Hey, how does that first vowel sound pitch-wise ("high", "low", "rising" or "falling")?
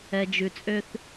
low